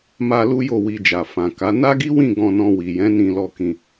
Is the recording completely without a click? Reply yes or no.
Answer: yes